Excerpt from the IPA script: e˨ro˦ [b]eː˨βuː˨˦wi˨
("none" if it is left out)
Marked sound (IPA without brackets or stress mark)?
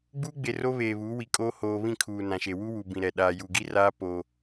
β